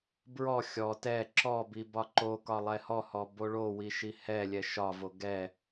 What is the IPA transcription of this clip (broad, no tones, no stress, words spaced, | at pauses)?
bɹɔ xʲɔ tɛ ǁɔ bibɒǃokɒ lˠɛhɔhɔ boɭowi ʃihɛlʲɛ ʃɒvo ɡɛ